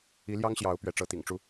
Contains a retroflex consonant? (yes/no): yes